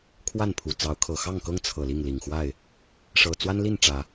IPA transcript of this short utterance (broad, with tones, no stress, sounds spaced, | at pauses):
kʰ w a˥˨ n pʰ u˨˩ t͡s ɑ˨˦ ʊ̯ kʰ ɤ˨˩ x ɑ˥˨ ŋ k ɤ˦ ŋ t͡sʰ ɤ˨˩ l i˥˨ ŋ l i˨˩ ŋ x w a˥˨ ɪ̯ | ʂ ɤ˨˩ t͡s w a˦ n l i˥˨ n ʈ͡ʂ ä˨˦